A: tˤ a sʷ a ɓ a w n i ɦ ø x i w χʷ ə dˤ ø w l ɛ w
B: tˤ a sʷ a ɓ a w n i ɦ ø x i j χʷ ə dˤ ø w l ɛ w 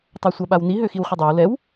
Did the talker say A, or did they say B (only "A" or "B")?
A